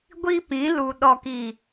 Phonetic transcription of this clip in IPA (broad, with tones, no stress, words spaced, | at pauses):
ɡʷi˦pĩ˨˦ lu˨ ɗɔ˨ki˨